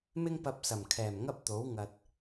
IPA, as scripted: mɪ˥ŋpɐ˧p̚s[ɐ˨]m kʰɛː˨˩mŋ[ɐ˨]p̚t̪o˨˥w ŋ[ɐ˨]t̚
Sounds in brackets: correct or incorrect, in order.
incorrect: ɐ˨˩, incorrect: ɐ˥, correct

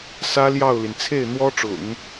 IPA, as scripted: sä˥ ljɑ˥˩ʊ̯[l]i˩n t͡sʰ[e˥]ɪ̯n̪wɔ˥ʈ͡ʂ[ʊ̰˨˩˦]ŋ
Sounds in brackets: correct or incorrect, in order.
correct, incorrect: e˥˩, correct

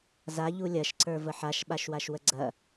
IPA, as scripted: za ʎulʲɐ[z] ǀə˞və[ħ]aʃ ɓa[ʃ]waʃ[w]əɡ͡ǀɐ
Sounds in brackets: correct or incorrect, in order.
incorrect: ʃ, correct, correct, correct

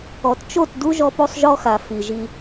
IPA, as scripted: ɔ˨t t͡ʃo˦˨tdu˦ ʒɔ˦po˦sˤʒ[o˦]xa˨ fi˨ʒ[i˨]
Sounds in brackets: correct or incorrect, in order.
incorrect: ɔ˦, incorrect: i˦

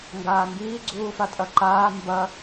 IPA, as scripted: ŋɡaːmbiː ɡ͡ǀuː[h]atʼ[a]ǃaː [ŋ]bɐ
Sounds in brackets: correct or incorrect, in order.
incorrect: f, incorrect: ɐ, incorrect: m

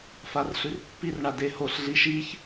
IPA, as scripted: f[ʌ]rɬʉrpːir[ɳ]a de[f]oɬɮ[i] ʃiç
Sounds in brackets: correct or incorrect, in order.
incorrect: a, correct, incorrect: h, correct

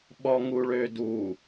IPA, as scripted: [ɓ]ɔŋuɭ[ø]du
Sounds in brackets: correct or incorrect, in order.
correct, correct

